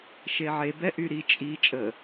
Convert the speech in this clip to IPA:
ʃ e ʕ e b ɛ ʔ y ɾ i t͡ʃʼ i t͡ʃʼ ə

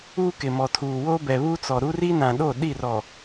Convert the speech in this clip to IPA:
uː˦ k ɪ˨ m ɔ˨ tʰ uː˨ w o˦ b ɛ˨ β u˦ t͡s ɔ˨ ɾ u˦ r i˦ n ã˨ ɗ o˦˨ ɗ i˦˨ r ɔ˨

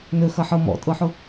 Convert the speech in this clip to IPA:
n ø x ɐ ħ ɤ m ɔ̰ tʼ ɤ ħ ʊ

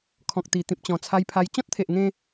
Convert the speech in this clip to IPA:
kʰ ɔ̃˨ k̚ t̪ i˨˩ t̪ ĩ˨ p̚ t͡ɕ ɔ̃˨˩ t͡sʰ a˧ j pʰ a˧ j t͡ɕ ɔ̃˦ t̚ t̪ʰ e˨ ʔ ŋ ẽ˧

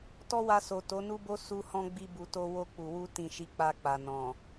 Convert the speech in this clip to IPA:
t ɔ˦ w a˧ s o˨ t o˨˦ n u˦ b o˦ s u˧ h ɔ̃˧ ɡ͡b i˧ b u˨ t o˧ w o˧ k͡p u˨ w u˧ t ĩ˨ ʃ i˨˦ k͡p a˧ k͡p a˨ n ɔ̃˨

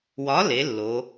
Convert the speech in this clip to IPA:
w ɒ˨˥ l e˩˧ lː o˩˧

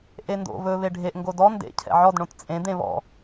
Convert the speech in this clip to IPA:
ʔ e n d o̰ β ɵ β e ɖʱ e ʔ ŋ ɡ o d ɔ n d ḛ cʰ ɛ̰ ʕ ɔ d ɳ õ t t͡sʼ ẽ d̪ ẽ β ɔ̰

